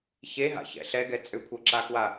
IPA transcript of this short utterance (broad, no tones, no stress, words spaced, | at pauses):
çeɦa̰çɛ̰ ɬɛɡɛ t͡sʼʏkʷʰɤǁakwa